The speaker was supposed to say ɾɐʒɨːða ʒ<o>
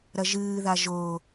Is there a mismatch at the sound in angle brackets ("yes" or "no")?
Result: no